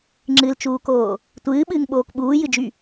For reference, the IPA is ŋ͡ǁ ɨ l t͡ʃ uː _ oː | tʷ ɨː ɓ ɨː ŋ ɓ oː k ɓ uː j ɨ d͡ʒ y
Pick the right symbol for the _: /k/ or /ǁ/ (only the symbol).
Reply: k